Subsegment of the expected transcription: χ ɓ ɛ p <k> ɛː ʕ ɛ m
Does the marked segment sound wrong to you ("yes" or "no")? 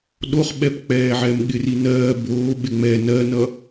yes